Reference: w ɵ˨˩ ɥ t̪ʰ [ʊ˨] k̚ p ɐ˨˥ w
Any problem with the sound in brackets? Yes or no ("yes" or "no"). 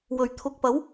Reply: no